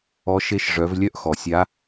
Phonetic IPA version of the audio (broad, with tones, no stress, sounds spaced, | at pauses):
ɔ˧˥ ʃ e˧˥ ʃ ʐ œ˩˧ v lʲ œ˥ ʔ x ɔ˩ sʲ a˧˥